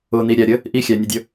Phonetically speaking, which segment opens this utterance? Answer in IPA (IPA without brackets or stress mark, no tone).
ʊ